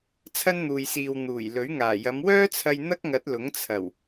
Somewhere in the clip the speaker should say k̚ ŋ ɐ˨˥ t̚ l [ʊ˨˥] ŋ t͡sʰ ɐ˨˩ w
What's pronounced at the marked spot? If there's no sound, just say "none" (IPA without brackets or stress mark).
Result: ʊ˨˥